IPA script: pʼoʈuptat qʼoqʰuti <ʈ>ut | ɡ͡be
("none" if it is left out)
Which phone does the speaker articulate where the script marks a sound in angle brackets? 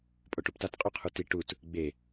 ʈ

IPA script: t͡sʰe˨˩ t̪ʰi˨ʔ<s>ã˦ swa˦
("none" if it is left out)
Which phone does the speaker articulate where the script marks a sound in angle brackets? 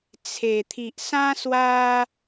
s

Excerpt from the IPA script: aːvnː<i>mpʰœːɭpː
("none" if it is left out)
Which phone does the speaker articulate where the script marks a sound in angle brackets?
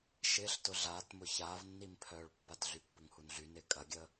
i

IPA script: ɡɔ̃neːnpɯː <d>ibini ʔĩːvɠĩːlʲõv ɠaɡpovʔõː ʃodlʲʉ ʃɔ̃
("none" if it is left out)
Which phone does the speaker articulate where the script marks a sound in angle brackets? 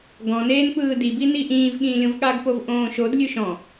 d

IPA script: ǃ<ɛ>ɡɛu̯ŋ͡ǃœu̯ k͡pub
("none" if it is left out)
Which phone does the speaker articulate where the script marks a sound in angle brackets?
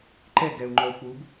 ɛ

